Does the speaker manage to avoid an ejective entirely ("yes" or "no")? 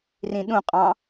no